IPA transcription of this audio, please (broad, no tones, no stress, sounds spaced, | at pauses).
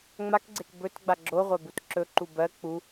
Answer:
ŋ͡m a k ɡ͡ǀ e k b ɵ t ɡ͡b a ɡ͡ǁ o ʁʷ a b u t ǁ ɵ ǃ u b ɜ k͡p u